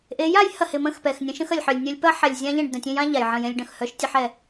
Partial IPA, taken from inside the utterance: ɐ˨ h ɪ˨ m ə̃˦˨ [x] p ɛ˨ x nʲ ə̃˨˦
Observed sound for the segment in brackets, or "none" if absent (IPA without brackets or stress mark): x